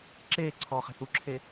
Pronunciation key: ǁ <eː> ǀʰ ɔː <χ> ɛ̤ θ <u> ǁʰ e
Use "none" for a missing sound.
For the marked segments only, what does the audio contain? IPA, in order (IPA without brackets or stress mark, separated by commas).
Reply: eː, χ, u